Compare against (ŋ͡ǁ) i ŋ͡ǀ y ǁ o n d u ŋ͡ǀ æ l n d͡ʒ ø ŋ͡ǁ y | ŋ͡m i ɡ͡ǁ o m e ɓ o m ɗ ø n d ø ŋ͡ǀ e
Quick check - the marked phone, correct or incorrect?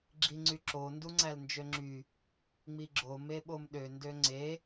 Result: incorrect